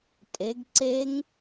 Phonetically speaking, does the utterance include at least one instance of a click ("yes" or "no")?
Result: yes